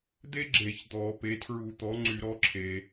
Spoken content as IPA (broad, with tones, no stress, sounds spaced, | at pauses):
d̪ e˥ ɡ͡ǁ e˧˩˧ ç d̪ ɔ˧˩˧ p e˩˥ tʰ ɹ u˧˩˧ t̪ ɔ˩˥ ŋ͡ǀ y˧˩˧ ɾ ɔ˩˥ ǁʰ e˩